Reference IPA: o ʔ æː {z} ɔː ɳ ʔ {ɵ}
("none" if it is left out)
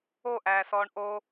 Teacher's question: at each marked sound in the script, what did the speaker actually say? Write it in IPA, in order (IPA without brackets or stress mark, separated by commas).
s, o